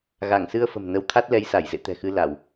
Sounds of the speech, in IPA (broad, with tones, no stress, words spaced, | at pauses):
ɣa˧˩ŋsɨ˧ə̯ fə̤˨˩mnə˨˦wt̪ʰa˦˥t̚lɛ˨˦j sa˧˩jzḛ˧˨t̪ɛ̤˨˩ xɨ˧la˧˩˨w